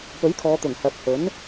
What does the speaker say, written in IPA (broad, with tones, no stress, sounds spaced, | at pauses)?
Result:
p ɵ˨˥ ɥ kʰ ɔː˨˧ t̪ ʊ˨˩ ŋ h ɐ˨ p̚ h ɵ˨˥ n